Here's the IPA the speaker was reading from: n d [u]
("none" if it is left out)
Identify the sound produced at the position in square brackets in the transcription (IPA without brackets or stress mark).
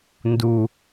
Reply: u